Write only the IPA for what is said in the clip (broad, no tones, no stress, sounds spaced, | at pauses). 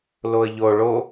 l o ə̯ ʎ o ɭ o